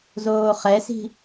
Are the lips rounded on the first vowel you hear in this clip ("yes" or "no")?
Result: yes